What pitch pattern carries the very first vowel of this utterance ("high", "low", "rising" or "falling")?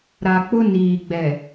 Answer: low